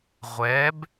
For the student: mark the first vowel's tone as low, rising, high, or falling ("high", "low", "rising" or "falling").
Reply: rising